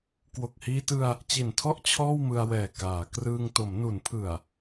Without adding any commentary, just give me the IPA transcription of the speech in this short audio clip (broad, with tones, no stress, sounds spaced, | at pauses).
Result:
k w o˨˩ k̚ h iː˧ t ɯ˧ a̯ | t͡ɕ i˨˩ n tʰ ɔ˥˩ ʔ t͡ɕʰ ɔː˥˩ w m ɯ˧ a̯ w ɛː˨˩ k aː˩˦ k r ɯː˧ ŋ t o˩˦ m n u˩˦ n pʰ ɯ˨˩ a̯